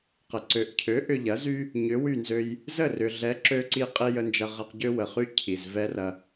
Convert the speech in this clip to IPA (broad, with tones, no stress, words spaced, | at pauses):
qə˩ ǀø˩ʔcʰø˩˥ ʔʏ˧ʎɐ˩˥zy˥ | ɲʏ˩˥wy˥˩nzø˧j | zə˥˩rʏ˩ ɮɛ˩˥ǁø˧ǀi˧ qʼi˧ jə˧nd͡ʒɐ˧ʁɐ˧q ɟø˥ wə˩χy˥ cʰi˩z vɛ˥rɐ˧